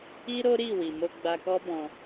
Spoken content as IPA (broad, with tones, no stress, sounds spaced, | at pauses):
i˦ ɾ o˦ ɾ i˦˨ w i˨ m o˧ ɡ͡b a˧ k ɔ˦ b ɔ̃˧